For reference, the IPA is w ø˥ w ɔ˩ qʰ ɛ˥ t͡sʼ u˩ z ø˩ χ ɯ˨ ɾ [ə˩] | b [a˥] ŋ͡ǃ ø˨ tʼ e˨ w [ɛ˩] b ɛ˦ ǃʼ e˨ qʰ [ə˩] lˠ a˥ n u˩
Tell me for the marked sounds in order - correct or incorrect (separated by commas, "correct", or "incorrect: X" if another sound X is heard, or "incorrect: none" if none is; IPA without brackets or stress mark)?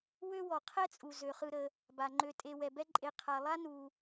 correct, incorrect: a˩, correct, incorrect: a˩